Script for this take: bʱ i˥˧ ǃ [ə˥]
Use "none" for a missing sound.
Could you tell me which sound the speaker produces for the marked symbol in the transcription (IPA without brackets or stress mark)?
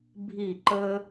ə˥